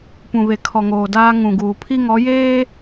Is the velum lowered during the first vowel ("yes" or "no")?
yes